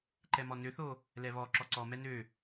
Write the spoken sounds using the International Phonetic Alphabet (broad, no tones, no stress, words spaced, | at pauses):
ǃɛmɔnøθo | lɛβɔ ǁɔǀɔmɛ nø